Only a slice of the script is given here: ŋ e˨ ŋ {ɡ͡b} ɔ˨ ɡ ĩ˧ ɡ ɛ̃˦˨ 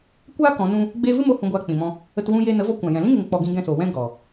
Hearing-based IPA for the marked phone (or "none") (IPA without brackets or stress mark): k͡p